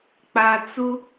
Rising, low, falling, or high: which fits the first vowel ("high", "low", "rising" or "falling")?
low